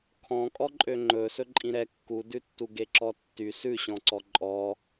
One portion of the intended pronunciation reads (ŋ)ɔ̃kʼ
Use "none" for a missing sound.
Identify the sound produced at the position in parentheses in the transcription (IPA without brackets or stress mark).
kʰ